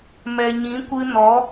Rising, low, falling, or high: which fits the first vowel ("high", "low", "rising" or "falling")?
low